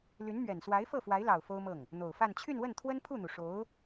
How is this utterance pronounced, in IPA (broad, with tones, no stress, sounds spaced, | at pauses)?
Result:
l y˧˥ n m ɥ ɛ˨˩ n s w a˧˥ ɪ̯ f ɤ˥˩ f w a˧˥ ɪ̯ l ɑ˨˩ ʊ̯ f o˥ ʊ̯ m ɤ˥˩ ŋ | n̪ o˨˩ ʊ̯ f a˥˧ n t͡ɕʰ y˥˧ n w ə˥˩ n t̪ʰ w ə˥ n pʰ u˥˩ n̪ u˩ ʂ o˧˥ ʊ̯